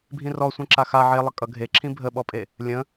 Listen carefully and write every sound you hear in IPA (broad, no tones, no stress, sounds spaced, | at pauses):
bʱ ĩ r ɔ sʷ ẽ ǁ a x a ʕ e lˠ ə kʼ ʌ ɡʱ e ǁʰ ĩ bʱ ə ɓ ɔ pʼ e | lʲ ə̃